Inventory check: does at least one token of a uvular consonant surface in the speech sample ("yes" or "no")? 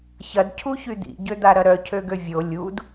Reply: no